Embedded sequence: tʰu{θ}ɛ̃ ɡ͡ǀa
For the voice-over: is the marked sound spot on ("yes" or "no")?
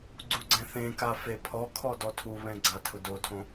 no